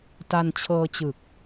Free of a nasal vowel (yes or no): yes